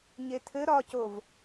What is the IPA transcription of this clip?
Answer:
ɲ e tʰ ɘ ɾ ɒ c o v

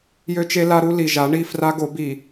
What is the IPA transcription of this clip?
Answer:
j ø˦ t͡ʃ e˦ l a˦ ɾ u˦ l i˨ ʒ a˨˦ ɳ i˦˨ f r a˦ ɡ o˨˦ b i˨

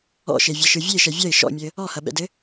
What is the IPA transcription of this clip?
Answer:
ɔ̰ ʃ e vʲ ɐ ʃ ɯ vʲ e ʃ ɛ vʲ ɐ ɪ̯ ʃ ɔ̰ mʲ ɘ | ɔ h ɐ ɓ ɛ̰ d ɘ

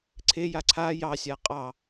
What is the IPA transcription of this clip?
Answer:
ǀʰ e j a ǀʰ a j ɑ sʲ a qʼ ɑ

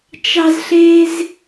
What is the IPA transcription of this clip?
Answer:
t͡ʃ ɑ˥ z ɬ e˥ z

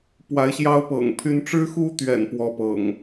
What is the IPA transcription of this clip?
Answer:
p w a˨˦ ɪ̯ ɕ j ɑ˦ ʊ̯ p ɤ̰˨˩ ŋ pʰ y˦ n ʈ͡ʂ ɻ̩˦ x u˦ t̪ ɥ ɛ̰˨˩ n p w ɔ˦ p ɤ̰˨˩ ŋ

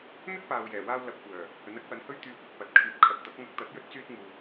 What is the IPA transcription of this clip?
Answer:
n̪ ɵ˥ t̚ p aː˨ w j ɛː˨˩ w aː˧ w l ɐ˨˥ p̚ kʷ œː˨˩ | h ɵ˨˥ n ɐ˥ k̚ w ɐ˨˥ n h ɵ˥ ɥ t̪ yː˧ kʷ ɪ˨ k̚ p ɐ˨˥ t̚ kʰ yː˨˥ p̚ kʰ ɐ˨ t̚ t̪ ɐ˨˥ k̚ ŋ ɐ˧ k̚ t̪ ɐ˨˥ t̚ j ɵ˥ t̚ t͡s yː˥ t̚ ŋ uː˨

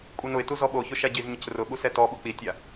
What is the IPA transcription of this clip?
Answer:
kʷʼ i n ʊ ɪ̯ t u z ɔ ɓ o ç ʊ ʃ a ɟ i z ɲ ɪ c r ʊ ɓ u s ɛ t ɔ ɓ ʊ k͡p i tʲ a

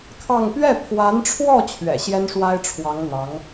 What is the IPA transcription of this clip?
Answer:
kʰ ɑ˥˧ ŋ p ɥ ɛ˥˩ pʰ w a˧˥ n ʈ͡ʂʰ w ɔ˥˩ t͡ɕʰ ɥ ɛ̰˨˩ ɕ j ɛ˥ n ʂ w a˥ ɪ̯ ʈ͡ʂʰ w ɑ˧˥ ŋ n̪ ɑ˧˥ ŋ

